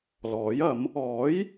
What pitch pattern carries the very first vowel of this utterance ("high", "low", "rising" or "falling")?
rising